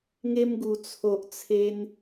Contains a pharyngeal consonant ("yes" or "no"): no